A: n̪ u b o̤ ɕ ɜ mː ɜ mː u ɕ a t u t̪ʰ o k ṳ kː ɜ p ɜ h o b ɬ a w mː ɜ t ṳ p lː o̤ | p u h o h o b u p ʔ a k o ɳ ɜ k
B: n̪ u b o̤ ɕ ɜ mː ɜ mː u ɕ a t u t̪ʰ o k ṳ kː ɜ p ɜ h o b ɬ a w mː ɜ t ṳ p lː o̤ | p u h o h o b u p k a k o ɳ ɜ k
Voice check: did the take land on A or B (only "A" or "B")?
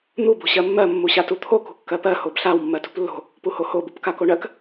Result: B